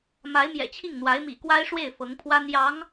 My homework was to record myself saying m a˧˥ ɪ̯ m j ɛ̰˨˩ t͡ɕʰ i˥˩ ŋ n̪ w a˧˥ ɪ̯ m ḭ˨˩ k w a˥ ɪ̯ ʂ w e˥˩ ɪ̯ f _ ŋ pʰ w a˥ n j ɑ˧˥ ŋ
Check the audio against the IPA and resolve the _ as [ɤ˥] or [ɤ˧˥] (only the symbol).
ɤ˧˥